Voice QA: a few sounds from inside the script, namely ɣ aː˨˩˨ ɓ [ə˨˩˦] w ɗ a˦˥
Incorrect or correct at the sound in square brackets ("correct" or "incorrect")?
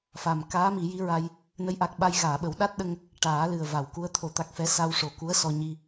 correct